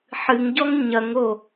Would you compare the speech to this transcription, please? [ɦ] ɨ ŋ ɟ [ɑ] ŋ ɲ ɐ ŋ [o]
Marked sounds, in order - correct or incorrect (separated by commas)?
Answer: incorrect, incorrect, correct